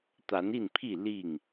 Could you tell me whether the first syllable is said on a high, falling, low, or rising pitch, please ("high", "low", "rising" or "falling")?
rising